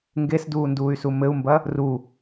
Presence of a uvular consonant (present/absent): absent